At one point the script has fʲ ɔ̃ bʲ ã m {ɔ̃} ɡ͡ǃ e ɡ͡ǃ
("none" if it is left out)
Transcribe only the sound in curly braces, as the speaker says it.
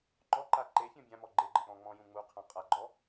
ɔ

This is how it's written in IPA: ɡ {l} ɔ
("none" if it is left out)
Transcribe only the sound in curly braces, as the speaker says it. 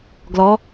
l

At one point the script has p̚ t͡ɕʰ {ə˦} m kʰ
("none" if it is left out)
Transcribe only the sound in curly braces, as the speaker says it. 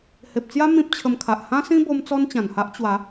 ə˧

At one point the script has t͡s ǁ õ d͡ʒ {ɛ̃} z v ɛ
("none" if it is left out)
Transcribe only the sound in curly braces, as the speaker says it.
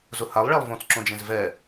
ẽ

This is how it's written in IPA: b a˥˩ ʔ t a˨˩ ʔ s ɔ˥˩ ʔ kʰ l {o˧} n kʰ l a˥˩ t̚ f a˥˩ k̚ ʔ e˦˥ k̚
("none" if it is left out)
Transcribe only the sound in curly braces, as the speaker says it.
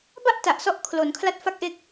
o˩˦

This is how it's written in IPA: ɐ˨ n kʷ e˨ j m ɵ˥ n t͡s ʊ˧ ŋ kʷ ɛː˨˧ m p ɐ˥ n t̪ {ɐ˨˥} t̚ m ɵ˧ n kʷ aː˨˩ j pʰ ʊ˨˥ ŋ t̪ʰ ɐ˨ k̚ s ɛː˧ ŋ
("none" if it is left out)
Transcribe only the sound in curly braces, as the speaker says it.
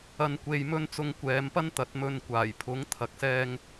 ɐ˨˥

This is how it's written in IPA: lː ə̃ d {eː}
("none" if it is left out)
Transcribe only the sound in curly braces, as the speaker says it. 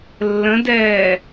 ɛː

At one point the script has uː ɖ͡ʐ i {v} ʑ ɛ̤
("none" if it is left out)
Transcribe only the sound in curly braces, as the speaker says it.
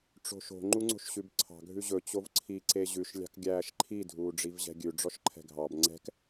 v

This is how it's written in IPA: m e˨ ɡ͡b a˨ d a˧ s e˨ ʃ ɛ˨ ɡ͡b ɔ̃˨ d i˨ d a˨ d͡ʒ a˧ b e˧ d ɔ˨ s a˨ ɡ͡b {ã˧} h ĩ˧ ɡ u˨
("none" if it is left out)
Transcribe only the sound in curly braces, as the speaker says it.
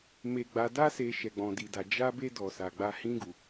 a˧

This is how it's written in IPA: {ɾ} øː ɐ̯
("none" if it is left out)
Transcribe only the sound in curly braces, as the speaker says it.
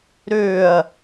ɾ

